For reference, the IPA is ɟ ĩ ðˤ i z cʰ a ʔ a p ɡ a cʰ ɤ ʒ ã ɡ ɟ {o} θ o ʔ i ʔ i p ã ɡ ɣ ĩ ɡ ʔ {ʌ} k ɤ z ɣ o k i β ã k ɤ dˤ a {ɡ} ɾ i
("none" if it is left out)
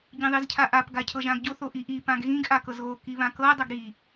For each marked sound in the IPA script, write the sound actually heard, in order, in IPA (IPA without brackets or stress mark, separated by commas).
o, a, ɡ